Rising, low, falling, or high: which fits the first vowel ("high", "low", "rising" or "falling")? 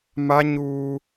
high